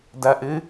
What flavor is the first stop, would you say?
plain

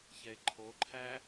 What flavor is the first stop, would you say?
click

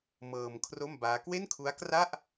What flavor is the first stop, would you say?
aspirated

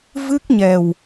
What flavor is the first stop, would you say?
plain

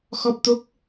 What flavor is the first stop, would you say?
plain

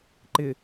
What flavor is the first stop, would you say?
click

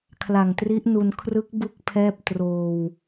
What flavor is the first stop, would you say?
aspirated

